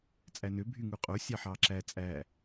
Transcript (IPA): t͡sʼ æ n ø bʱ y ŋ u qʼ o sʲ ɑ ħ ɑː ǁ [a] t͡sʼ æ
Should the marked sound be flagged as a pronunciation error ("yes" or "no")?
yes